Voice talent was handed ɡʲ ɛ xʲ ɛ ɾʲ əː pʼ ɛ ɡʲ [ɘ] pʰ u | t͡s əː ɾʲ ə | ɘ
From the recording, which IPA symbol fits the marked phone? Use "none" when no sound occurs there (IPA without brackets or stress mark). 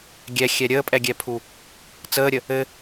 ɛ